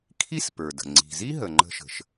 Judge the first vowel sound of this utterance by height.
high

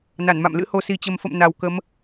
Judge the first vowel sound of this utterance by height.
low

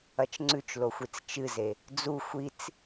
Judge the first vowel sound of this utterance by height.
low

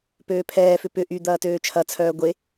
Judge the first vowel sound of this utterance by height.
mid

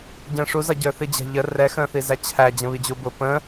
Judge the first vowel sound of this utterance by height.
mid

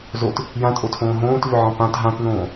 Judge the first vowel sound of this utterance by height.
mid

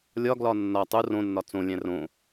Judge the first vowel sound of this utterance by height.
low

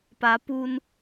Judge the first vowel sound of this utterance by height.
low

